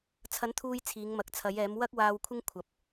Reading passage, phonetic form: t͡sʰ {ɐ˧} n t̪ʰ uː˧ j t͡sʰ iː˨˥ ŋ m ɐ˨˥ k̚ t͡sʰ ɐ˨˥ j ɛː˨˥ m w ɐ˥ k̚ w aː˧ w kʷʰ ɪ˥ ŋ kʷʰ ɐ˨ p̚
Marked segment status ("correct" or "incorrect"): incorrect